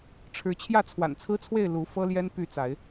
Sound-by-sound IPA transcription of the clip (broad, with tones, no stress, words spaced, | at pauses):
ʈ͡ʂʰɻ̩˨˦t͡ɕʰjä˥˨ t͡sʰwa̰˨˩nt͡sʰɹ̩˦t͡sʰwe˥˨ɪ̯ lu˨˦ fɤ˦ljɛ˦n py˥˨t͡sa˨˦ɪ̯